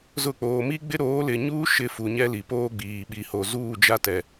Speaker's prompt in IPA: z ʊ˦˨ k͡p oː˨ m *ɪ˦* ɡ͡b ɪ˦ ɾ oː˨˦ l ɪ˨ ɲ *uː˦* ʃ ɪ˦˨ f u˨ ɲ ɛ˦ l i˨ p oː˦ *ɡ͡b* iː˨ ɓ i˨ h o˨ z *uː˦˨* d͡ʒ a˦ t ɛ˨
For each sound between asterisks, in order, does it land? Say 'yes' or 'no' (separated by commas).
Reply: no, yes, yes, yes